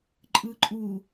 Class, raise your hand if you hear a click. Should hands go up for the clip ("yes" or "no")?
yes